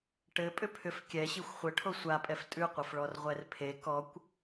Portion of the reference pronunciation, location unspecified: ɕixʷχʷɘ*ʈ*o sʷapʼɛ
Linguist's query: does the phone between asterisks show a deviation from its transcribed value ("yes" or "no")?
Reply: yes